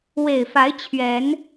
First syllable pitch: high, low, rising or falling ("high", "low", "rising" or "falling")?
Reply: low